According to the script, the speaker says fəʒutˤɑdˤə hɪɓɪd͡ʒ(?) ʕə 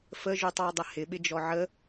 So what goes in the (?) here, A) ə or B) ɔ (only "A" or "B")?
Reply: B